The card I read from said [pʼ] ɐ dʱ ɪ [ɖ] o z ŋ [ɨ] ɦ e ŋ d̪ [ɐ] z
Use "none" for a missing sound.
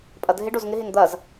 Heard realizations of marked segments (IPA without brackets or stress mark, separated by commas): pʼ, ɖ, ɪ, ɐ